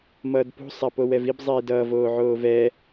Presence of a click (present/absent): absent